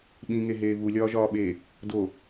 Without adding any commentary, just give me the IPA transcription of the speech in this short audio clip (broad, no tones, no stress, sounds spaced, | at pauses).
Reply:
ɓ ĩ ŋ e ɦ eː v u lʲ ɒː ʒ ɒː ɓ eː | d o